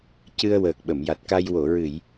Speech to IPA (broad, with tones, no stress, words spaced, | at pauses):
cɨ˧ə̯wəː˨˩k̚ ɓə˨˩˨mja˨˩t̚ka˧j wo˨˩˨ɹɨ˨˩˨j